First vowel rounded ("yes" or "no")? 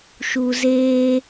yes